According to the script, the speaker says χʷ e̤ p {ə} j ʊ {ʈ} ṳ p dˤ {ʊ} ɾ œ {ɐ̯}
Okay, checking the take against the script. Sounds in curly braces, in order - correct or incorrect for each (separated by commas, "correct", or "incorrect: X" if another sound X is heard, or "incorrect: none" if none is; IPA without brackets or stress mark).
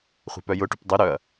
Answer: incorrect: œ, correct, correct, correct